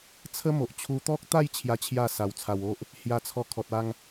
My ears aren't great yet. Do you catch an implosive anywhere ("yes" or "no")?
no